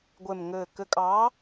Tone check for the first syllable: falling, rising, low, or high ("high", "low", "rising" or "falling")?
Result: low